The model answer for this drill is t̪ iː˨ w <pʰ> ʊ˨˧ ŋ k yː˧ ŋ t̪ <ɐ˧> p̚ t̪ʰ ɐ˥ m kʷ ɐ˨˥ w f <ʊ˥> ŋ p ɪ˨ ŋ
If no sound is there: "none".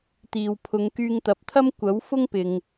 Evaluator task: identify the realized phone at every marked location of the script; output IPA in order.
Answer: pʰ, ɐ˨, ʊ˥

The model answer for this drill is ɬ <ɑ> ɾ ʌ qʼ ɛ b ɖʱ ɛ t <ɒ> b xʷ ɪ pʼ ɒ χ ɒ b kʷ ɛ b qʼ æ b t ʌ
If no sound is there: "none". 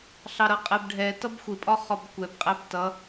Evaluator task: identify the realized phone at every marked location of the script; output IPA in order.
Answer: ɑ, ʌ

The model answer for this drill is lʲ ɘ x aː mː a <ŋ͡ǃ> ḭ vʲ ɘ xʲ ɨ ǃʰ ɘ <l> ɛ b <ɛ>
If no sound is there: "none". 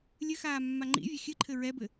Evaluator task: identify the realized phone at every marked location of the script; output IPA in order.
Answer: ŋ͡ǃ, ɹ, ɘ

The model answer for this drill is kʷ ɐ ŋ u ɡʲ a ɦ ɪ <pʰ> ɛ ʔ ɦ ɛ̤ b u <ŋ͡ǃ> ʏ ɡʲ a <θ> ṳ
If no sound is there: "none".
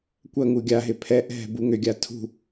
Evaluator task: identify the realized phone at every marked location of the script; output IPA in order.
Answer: pʰ, ŋ, tʰ

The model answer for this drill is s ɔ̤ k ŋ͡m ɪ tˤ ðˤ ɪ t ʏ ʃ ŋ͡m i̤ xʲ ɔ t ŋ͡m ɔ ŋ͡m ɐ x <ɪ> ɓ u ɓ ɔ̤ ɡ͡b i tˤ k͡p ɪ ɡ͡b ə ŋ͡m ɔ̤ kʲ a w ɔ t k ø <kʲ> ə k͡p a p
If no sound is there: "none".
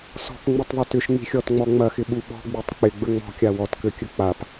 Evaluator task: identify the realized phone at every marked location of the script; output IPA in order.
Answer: ɪ, kʲ

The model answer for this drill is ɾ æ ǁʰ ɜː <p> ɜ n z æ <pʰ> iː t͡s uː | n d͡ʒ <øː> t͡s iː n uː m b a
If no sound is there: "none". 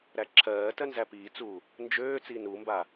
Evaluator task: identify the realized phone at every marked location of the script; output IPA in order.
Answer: t, p, øː

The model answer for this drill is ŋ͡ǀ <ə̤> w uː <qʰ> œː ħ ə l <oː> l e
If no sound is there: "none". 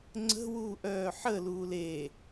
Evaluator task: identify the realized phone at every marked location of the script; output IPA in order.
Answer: ə̤, ʔ, uː

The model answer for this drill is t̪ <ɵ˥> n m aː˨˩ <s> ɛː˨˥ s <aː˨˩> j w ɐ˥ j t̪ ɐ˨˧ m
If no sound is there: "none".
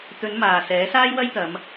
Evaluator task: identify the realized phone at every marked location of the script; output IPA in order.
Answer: ɵ˨˧, s, aː˥

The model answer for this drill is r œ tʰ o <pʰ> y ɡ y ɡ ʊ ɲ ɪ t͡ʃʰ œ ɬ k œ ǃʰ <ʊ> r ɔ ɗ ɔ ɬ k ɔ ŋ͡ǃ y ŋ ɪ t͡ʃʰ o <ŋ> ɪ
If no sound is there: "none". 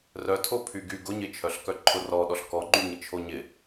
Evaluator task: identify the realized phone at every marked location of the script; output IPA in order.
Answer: pʰ, ʊ, ɲ

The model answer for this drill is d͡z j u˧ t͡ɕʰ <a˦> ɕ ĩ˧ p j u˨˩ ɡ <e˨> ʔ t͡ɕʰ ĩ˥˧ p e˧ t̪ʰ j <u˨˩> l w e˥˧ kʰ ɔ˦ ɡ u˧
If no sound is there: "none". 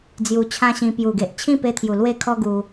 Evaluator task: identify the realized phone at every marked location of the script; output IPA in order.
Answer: ã˦, e˨, u˨˩

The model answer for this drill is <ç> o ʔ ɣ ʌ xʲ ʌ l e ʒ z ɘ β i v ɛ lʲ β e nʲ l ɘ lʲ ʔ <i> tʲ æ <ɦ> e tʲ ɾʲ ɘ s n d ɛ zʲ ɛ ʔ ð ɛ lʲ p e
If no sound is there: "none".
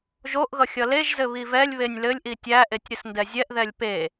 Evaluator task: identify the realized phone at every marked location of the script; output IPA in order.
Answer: ʒ, i, ʔ

